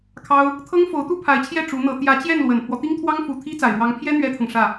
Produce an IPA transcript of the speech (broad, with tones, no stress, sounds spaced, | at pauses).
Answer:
kʰ ɑ˥ ʊ̯ | t̪ʰ ɤ˥ ŋ f o˧˥ ʊ̯ t̪ u˥ pʰ a˧˥ ɪ̯ t͡ɕʰ j ɛ˥˩ ʈ͡ʂ u˧˥ n̪ ɤ˧˥ t̪ j ä˧˥ t͡ɕ j ɛ˥˩ n l w ə˨˩ n pʰ w ɔ˦ t̪ i˥ ŋ t̪ʰ w ɑ˥ ŋ f u˨˩ t̪ʰ i˥ t͡s a˨˩ ɪ̯ ɻ w ɑ˧˥ ŋ pʰ j ɛ˥ n̪ ɥ ɛ˥ t̪ʰ ɤ˨ ŋ ʂ ä˥˩